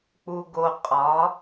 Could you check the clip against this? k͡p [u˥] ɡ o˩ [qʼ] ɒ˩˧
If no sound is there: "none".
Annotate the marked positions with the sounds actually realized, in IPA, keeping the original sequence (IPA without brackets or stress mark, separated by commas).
u˩, qʼ